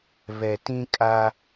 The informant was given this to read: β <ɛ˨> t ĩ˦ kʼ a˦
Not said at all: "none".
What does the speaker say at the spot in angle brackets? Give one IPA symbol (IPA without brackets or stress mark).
ɛ˨